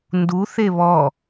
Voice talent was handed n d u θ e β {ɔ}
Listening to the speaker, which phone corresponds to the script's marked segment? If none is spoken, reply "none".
ɔ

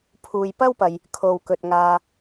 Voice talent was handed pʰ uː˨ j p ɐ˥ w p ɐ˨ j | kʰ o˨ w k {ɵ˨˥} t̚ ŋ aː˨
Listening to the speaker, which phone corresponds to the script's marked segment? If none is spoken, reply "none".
ɵ˨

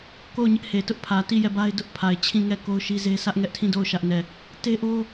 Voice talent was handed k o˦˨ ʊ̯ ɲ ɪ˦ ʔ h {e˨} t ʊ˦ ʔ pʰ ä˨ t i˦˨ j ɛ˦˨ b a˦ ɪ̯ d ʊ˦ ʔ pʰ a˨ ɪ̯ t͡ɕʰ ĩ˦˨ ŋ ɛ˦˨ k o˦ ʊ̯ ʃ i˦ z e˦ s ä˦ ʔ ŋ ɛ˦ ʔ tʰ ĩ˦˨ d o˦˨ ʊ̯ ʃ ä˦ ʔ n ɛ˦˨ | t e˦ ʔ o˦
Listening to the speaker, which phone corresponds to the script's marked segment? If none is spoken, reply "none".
e˨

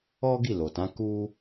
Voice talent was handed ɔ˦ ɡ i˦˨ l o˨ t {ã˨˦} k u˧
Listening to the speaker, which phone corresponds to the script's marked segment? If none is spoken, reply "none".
ã˨˦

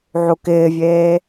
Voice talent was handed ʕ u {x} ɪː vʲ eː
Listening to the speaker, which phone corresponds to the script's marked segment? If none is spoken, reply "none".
k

